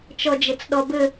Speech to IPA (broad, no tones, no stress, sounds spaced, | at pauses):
t͡ʃ ɔ d͡ʒ ɘ t͡s ɗ ɔ b ɘ